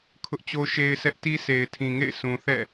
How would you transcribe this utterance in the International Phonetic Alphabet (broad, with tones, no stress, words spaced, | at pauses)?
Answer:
kʰʊ˦ʔt͡ɕo˦ʃe˦ɪ̯sɛ˦ʔ ti˦se˨ɪ̯tʰĩ˨ŋḛ˦˨ɪ̯ sʰũ˨θɛ̰˦˨